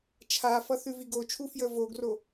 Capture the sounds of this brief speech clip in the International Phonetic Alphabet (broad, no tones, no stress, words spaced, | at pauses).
t͡ʃʰafʌ θʉviɡot͡ʃʰu fjəvoɡro